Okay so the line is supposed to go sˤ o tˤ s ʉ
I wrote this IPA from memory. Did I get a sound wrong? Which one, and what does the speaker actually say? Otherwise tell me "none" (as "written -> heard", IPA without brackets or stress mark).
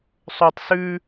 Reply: none